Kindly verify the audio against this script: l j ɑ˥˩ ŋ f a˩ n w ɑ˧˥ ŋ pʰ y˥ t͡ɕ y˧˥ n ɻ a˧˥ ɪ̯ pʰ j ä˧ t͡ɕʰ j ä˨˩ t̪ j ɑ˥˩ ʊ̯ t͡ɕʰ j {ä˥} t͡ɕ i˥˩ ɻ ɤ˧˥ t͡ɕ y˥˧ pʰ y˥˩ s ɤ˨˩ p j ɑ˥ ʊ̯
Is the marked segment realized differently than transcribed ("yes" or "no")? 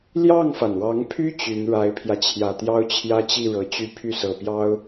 no